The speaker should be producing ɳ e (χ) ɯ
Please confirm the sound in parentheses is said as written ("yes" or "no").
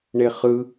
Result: yes